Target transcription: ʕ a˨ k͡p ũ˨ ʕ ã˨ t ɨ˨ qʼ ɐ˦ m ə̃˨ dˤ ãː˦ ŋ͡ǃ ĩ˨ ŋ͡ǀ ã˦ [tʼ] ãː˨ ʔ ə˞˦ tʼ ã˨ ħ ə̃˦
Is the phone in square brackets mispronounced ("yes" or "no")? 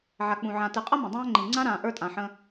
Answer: yes